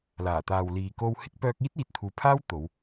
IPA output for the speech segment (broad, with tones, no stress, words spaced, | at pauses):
laː˨˩t̪aː˨w liː˨ko˧w hɪ˧k̚pœː˧k̚ iː˥t̚iː˨t̚t̪ʰuː˨pʰaː˥w t̪o˨˧w